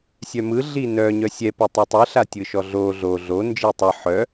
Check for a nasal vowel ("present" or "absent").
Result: absent